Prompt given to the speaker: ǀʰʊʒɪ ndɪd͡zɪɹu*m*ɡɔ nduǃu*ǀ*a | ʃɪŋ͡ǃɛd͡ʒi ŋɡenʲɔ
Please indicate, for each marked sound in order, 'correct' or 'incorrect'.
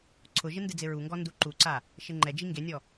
incorrect, correct

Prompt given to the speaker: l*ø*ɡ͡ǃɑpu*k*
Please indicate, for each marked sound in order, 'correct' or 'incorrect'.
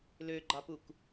correct, correct

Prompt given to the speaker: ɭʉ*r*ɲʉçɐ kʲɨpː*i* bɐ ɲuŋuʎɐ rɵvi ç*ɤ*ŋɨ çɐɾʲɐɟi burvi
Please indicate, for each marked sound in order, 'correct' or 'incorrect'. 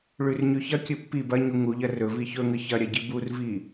correct, correct, incorrect

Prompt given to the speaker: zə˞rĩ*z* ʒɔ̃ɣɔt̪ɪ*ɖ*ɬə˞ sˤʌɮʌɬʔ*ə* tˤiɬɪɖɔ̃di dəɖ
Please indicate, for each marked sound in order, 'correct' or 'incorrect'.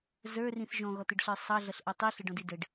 incorrect, correct, incorrect

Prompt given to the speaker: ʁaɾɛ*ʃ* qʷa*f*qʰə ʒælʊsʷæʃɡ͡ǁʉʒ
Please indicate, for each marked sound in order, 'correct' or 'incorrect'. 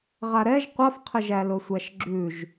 incorrect, correct

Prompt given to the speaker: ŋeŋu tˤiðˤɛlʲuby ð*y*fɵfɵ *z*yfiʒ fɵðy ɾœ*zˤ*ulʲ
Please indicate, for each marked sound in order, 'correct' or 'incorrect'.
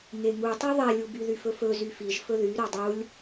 correct, correct, incorrect

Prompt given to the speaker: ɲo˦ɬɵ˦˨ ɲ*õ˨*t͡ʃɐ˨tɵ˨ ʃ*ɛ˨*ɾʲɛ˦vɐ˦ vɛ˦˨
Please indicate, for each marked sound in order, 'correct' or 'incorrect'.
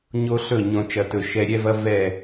correct, correct

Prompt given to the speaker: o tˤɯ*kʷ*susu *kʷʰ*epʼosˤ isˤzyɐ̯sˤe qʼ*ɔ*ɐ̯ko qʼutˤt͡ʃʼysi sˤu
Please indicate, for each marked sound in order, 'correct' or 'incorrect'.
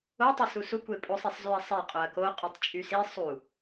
incorrect, incorrect, incorrect

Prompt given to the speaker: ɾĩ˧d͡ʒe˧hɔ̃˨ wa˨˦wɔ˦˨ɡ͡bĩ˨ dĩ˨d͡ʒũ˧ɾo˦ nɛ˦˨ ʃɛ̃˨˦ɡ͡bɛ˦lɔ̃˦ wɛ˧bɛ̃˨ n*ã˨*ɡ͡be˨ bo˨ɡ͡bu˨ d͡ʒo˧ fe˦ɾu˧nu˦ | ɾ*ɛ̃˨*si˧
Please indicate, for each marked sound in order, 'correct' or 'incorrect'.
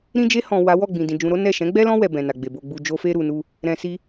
incorrect, correct

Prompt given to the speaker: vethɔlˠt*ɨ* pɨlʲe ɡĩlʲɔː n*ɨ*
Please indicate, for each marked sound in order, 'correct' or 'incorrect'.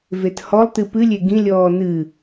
correct, correct

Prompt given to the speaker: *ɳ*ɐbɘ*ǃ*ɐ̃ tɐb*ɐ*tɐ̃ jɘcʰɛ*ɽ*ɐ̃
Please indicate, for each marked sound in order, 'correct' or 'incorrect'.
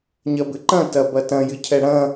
incorrect, correct, correct, correct

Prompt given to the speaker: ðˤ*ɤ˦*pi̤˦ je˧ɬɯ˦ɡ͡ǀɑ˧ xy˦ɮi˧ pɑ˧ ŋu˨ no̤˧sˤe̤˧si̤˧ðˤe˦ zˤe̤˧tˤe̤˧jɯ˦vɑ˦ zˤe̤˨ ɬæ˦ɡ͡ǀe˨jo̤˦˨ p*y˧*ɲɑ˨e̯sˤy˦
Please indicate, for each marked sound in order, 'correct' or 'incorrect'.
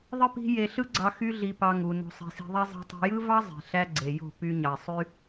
incorrect, correct

